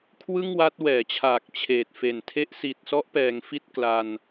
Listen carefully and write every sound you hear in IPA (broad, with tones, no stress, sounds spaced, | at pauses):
kʰ w ɯ˥˩ ŋ w a˦˥ t̚ w ɛː˩˦ t͡ɕʰ aː˨˩ k̚ t͡ɕʰ eː˨˩ t̚ f e˨˩ n tʰ e˥˩ ʔ s i˨˩ t̚ s ɔ˦˥ ʔ p ɛː˩˦ ŋ f i˥˩ t̚ k l a˧ n